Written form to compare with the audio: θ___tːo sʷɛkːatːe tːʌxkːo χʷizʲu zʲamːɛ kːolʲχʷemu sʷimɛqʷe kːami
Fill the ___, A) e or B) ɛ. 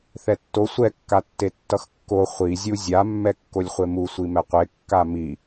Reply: B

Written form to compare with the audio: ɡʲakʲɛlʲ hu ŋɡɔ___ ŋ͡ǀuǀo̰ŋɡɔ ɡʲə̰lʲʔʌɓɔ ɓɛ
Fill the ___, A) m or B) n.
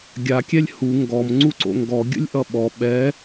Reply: A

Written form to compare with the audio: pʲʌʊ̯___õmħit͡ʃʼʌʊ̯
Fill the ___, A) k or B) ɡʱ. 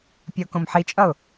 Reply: A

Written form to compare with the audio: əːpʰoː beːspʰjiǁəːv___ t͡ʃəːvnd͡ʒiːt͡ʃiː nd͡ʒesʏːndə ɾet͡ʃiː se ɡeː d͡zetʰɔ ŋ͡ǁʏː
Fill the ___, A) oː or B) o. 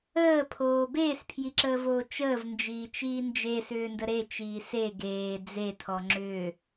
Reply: A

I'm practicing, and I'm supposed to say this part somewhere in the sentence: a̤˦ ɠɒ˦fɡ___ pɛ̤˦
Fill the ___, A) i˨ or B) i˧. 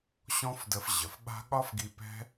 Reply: B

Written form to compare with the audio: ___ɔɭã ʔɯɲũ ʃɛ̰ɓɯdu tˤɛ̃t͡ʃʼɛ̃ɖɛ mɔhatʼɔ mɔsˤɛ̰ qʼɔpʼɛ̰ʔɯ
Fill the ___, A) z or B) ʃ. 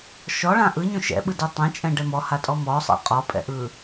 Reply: B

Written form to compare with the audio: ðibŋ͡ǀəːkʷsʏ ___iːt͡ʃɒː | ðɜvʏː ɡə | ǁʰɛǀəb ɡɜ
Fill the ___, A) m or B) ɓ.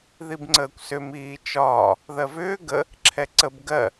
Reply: A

